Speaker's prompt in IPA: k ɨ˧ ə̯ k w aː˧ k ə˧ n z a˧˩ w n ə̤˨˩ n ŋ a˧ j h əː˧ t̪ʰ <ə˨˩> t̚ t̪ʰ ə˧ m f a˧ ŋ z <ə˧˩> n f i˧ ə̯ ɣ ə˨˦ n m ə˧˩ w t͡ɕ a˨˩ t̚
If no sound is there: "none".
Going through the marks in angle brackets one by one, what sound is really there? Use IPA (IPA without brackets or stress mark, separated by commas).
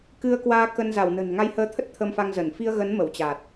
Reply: ə˦˥, ə˧˩